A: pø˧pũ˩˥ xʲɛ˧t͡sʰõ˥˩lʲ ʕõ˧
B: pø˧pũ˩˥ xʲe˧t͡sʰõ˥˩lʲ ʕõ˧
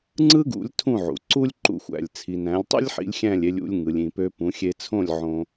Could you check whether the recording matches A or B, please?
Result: B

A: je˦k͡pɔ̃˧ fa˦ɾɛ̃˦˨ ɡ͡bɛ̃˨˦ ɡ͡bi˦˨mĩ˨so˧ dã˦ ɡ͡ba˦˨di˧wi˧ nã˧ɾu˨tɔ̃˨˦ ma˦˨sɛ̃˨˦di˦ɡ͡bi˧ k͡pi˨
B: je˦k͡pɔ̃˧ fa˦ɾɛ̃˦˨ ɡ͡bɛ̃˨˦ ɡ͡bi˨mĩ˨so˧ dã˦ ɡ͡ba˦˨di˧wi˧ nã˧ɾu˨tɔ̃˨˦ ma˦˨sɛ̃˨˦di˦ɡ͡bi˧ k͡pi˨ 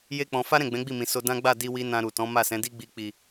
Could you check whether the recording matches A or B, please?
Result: A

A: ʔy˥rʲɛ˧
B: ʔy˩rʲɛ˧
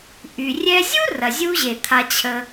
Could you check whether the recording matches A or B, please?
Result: B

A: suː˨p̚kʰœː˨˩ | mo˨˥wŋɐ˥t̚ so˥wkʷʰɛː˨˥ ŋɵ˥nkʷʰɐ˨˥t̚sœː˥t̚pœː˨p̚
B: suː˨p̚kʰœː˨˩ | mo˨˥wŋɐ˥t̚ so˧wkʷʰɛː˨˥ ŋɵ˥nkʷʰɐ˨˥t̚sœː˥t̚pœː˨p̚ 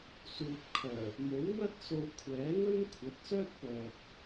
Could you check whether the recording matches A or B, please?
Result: B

